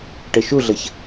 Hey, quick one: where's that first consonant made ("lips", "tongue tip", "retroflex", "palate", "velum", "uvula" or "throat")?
retroflex